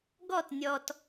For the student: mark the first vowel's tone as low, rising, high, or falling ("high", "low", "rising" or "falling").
falling